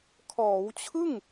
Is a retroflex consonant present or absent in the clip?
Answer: absent